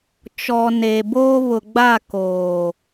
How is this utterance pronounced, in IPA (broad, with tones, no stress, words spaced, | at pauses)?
t͡ʃɔ˨ neː˨boː˦ βʊ˨ɡ͡ba˦˨ koː˨